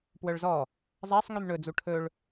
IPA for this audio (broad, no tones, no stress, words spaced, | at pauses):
pwœɭzɔ | zˤæsˤŋym ɳɵd͡zu ʈʰɵɭ